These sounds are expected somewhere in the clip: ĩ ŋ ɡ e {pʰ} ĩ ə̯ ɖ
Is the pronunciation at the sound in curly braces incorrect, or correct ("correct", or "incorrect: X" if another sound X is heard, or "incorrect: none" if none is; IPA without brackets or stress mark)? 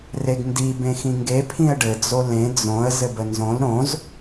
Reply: correct